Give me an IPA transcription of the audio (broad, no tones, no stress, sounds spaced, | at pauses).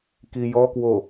k i j ɔ k w o